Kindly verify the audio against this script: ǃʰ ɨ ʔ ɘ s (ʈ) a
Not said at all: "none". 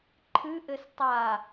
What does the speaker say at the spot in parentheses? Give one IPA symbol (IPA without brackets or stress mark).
tˤ